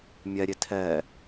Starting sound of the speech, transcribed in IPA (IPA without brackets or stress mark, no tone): mʲ